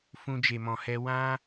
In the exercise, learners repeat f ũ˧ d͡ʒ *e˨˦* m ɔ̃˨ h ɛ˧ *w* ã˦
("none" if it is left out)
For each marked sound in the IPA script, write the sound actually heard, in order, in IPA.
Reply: e˨, w

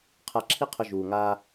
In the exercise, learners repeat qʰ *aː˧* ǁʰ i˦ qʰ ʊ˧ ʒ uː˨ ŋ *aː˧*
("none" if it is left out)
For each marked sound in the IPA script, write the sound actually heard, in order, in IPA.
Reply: a˧, aː˧

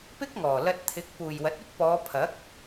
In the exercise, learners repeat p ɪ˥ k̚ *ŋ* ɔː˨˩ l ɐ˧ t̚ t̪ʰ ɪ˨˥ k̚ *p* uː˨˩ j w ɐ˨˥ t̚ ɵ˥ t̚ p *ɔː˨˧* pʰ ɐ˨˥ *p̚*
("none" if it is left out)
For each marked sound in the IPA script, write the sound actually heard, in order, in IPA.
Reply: ŋ, p, ɔː˨˧, k̚

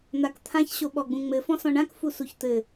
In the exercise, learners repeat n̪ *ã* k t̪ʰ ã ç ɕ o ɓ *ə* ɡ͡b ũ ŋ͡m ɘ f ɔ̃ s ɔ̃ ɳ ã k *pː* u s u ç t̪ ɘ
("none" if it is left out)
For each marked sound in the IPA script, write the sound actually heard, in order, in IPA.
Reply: a, ɔ, f

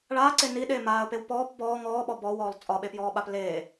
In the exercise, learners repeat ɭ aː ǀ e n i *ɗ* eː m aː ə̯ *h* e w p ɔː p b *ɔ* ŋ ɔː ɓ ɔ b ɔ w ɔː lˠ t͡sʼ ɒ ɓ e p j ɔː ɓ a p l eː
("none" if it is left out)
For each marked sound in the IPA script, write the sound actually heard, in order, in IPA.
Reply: ɗ, p, ɔː

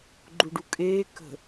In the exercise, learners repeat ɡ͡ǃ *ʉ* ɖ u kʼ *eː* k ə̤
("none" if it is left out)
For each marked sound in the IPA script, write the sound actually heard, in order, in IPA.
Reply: u, eː

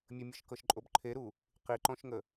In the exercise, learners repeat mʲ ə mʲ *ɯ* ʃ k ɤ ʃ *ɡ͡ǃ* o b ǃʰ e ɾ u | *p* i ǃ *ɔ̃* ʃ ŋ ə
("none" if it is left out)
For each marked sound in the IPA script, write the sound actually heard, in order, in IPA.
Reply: ɤ, ǃʼ, q, ɔ̃

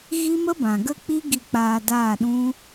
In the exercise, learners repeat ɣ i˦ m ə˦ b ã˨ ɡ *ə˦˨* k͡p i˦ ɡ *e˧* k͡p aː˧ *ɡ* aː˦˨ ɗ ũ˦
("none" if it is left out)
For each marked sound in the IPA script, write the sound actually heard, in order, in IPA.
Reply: ə˦˨, i˧, d

